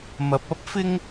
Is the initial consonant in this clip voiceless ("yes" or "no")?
no